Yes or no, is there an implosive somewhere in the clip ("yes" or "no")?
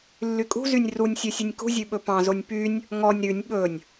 yes